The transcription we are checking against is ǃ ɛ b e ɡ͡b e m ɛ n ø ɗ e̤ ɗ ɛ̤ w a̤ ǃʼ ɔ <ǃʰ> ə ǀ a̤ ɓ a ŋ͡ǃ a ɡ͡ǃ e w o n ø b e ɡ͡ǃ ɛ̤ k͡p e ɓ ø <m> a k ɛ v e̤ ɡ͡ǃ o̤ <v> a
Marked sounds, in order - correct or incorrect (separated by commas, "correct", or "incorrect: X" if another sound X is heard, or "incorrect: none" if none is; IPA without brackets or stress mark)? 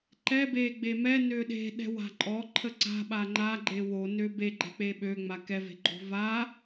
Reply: correct, incorrect: ŋ͡m, correct